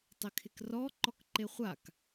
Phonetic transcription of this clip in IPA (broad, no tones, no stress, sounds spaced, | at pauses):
tˤ ɪ kʰ ɪ k r ɔ ǃ ɔ k ǃ e χʷ a k